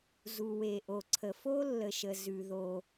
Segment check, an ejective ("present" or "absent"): absent